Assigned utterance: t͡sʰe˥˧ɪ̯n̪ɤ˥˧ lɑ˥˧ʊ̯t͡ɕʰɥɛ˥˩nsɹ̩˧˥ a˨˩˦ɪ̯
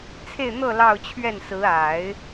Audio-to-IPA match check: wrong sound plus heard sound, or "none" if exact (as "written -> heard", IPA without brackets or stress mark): none